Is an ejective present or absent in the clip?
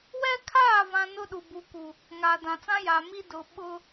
absent